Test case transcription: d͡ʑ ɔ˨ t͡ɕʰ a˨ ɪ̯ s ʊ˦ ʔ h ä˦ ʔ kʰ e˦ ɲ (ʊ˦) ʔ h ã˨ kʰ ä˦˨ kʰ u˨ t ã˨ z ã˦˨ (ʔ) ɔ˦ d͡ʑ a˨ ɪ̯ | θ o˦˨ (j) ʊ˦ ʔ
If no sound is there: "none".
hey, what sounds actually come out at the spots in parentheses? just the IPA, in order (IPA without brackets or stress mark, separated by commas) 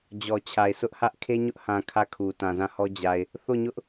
ʊ˦, h, ɲ